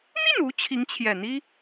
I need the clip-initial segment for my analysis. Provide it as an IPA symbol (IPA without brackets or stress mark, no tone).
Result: n̪